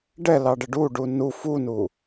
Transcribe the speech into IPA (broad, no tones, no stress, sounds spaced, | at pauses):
ɖ ɛ l ɑ ɖ ə ɖ u ɖ u n u f u n u